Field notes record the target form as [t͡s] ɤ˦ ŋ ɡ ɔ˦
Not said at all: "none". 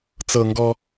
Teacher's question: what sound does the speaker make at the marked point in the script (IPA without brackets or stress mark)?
t͡s